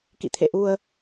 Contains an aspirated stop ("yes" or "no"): yes